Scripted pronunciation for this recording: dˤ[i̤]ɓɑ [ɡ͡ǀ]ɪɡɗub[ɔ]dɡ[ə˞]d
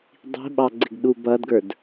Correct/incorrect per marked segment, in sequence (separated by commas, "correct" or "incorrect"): correct, correct, incorrect, correct